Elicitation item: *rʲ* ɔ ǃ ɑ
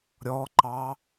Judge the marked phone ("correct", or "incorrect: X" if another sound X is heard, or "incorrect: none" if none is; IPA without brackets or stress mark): incorrect: ɾʲ